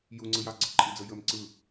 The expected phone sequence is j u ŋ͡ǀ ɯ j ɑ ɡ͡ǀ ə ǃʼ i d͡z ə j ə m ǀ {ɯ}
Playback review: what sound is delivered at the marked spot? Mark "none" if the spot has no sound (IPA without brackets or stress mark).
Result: ɯ